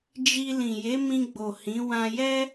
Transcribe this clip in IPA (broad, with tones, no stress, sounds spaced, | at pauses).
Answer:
d͡ʒ i˧ l ĩ˨ j e˨˦ m ĩ˧ ɡ͡b o˨ h ĩ˨˦ w ã˧ j ɛ˦